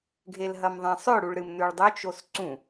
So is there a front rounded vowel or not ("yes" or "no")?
no